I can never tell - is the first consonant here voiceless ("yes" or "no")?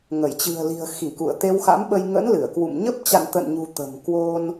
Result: no